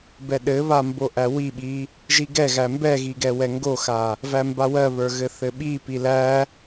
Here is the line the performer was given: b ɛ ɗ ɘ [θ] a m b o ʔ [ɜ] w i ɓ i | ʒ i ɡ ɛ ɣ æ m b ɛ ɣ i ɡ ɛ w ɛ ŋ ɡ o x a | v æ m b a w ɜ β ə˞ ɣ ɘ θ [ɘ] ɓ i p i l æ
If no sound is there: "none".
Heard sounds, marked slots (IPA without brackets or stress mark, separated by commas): β, æ, ɘ